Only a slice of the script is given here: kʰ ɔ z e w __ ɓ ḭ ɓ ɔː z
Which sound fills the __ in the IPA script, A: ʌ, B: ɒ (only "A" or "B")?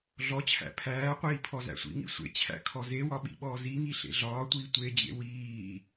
B